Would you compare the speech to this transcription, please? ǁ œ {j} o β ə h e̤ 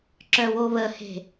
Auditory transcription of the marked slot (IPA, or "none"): w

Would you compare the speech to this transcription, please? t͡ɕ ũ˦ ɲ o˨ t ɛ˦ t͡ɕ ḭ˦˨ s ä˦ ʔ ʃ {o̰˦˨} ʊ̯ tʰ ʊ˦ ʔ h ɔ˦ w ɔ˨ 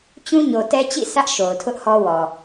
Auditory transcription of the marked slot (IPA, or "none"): o˨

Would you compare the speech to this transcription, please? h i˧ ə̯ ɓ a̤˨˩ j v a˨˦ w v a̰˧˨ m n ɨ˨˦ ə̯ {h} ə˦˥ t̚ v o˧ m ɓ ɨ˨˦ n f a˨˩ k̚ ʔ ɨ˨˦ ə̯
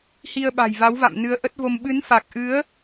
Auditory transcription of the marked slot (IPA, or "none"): ʔ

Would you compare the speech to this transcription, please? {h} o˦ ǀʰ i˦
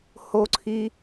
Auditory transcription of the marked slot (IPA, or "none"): h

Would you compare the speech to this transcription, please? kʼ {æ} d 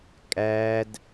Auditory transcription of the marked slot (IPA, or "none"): æ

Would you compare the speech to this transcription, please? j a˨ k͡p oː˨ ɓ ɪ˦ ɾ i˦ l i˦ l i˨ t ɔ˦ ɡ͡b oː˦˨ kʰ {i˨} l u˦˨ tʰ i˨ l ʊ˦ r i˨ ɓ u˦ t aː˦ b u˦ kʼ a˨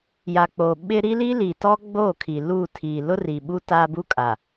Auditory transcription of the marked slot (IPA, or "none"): i˨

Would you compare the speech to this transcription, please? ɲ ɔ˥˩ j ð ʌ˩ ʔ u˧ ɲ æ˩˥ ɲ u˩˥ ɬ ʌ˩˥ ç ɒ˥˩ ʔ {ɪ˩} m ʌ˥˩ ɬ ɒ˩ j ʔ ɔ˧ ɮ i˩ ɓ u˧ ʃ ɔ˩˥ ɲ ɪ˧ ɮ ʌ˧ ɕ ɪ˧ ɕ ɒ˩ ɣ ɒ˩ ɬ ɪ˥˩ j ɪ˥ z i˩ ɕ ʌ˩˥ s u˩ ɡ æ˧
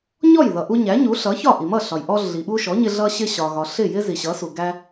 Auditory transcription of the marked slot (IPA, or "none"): i˩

